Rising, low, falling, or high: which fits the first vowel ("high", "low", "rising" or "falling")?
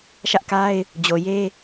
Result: high